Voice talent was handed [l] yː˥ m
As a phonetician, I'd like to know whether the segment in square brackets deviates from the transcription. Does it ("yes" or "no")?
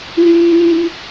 no